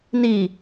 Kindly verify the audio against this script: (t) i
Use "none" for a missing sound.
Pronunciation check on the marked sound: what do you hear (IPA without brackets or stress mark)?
n